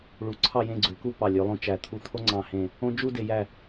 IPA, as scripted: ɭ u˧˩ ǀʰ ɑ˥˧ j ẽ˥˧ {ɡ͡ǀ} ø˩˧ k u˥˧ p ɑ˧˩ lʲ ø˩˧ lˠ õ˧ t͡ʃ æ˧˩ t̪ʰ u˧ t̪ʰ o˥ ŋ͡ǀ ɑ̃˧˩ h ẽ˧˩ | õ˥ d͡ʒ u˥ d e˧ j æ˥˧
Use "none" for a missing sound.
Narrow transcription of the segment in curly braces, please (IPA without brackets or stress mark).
ɡ͡ǀ